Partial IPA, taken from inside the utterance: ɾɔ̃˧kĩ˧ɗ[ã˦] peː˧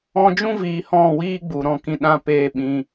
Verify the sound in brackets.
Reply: correct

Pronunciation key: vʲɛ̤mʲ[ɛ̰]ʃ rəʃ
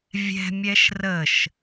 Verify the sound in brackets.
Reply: incorrect: ɛ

